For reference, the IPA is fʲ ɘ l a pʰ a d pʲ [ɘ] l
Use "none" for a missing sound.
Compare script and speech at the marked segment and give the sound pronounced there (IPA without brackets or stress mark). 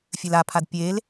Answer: e